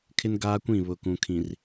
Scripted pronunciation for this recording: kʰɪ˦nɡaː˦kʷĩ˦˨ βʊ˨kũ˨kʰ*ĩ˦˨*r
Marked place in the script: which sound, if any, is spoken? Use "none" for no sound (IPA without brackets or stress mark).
ĩ˨